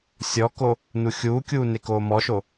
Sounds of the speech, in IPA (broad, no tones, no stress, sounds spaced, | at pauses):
sʲ ɔ k o | n u xʲ uː kʲ uː n e k oː m ɔ ʃ o